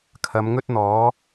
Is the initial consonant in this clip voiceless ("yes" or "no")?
yes